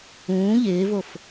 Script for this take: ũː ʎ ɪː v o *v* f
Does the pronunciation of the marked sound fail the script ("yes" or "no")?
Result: yes